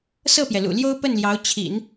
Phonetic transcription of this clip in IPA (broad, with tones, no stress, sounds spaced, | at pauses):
s ɤ˥˩ p j ɛ˩ l ṵ˨˩ l j o˥ ʊ̯ p ə˥˩ n l j ɑ˧˥ ʊ̯ t͡ɕʰ ḭ˨˩˦ n